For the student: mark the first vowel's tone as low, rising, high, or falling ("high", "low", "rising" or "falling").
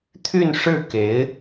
falling